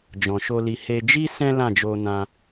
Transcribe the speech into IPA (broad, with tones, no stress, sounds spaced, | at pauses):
d͡ʒ ɔ̃˨ ʃ o˧ l i˧ h e˧ d͡ʒ i˦ s ɛ̃˦ l ã˦˨ d͡ʒ o˧ n ã˧